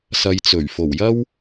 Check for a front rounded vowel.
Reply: absent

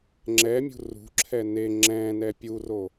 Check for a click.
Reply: present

